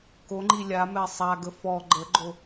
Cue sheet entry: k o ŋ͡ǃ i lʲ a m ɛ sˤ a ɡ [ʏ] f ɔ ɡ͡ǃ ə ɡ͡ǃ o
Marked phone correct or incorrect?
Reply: incorrect